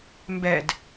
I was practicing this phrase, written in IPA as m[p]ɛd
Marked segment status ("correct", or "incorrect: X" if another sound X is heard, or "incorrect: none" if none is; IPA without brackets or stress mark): incorrect: b